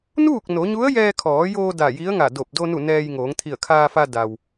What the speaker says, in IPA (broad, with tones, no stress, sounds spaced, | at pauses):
n uː˥˨ k̚ n o˩˧ ɲ u˧˥ ə̯ j ɛː˧ kʰ ɔː˩˧ j oː˧ d a˧˩ j i˧˥ ə̯ ŋ a˧˩ d o˧˩ p̚ d o˧ n u˧˩ n ɛː˧ j ŋ oː˩˧ ŋ t̪ʰ i˧˩ ə̯ kʰ aː˧ f a˧ d a˩ w